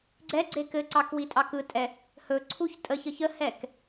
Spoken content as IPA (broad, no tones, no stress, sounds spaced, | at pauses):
ɡ͡ǀ ɛ ɡ͡ǀ e k ɘ ǀ ɑ k w i tʼ ɑ k ɯ tʼ ɛ | h ɵ ǀʰ u ç tʼ ə ç ə ç ə h ɛ k